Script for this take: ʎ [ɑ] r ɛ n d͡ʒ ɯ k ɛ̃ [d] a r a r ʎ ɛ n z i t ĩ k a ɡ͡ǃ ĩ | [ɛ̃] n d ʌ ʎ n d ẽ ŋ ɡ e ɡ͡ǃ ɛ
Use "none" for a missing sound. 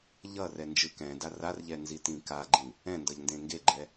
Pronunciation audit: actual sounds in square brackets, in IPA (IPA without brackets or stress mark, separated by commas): ʌ, d, ɛ̃